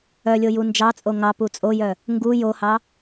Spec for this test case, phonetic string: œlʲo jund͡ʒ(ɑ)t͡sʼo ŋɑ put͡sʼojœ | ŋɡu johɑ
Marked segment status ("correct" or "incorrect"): correct